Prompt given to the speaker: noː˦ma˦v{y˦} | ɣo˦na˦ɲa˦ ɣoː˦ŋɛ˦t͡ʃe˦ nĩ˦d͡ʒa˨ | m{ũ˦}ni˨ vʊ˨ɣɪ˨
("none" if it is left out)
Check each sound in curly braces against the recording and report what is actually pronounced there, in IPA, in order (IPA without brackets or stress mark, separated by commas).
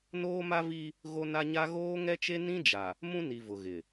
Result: i˦, ũ˦